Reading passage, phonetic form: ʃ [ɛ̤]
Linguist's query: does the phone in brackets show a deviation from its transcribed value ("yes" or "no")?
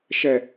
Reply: yes